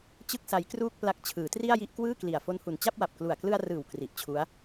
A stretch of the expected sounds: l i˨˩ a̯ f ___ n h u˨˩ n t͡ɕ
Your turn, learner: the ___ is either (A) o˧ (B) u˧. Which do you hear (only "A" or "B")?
A